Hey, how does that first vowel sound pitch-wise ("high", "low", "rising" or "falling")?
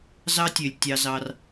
high